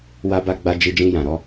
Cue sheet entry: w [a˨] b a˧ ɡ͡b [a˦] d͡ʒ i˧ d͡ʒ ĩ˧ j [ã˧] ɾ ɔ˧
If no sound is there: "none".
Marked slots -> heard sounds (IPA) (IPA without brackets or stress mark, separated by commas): a˧, a˧, ã˨